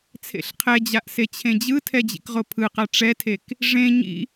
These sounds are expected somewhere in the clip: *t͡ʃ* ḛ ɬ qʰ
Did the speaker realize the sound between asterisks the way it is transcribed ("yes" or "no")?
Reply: no